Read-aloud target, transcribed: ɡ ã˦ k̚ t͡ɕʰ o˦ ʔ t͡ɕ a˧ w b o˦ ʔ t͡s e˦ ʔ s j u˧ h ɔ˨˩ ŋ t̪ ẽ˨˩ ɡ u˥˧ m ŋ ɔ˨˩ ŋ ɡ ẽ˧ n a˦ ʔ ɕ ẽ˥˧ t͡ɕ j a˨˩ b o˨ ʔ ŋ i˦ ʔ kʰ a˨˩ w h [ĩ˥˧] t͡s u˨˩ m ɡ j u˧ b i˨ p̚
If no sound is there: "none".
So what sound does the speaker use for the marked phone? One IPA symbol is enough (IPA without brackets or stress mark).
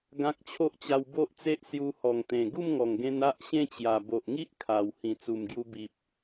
ĩ˨˩